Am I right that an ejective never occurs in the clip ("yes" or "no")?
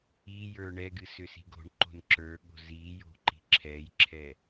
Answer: yes